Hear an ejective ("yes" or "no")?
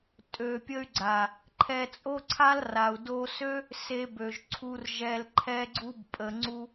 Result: yes